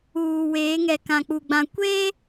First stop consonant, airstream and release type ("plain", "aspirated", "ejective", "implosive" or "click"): plain